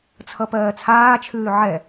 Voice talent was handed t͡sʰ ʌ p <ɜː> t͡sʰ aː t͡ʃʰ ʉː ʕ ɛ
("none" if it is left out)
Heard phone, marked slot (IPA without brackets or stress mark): ɜː